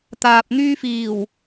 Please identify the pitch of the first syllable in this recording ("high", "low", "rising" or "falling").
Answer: low